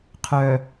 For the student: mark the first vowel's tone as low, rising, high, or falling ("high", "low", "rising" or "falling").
low